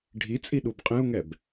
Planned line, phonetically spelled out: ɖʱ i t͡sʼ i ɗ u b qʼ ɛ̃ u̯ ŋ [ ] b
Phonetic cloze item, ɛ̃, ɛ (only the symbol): ɛ